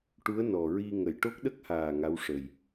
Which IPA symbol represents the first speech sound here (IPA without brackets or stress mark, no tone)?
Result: ʈ